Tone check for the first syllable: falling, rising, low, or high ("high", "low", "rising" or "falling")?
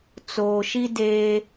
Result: low